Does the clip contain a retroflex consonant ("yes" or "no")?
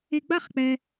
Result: no